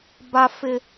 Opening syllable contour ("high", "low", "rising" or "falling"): high